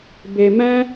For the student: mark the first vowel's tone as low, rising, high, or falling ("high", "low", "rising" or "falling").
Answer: low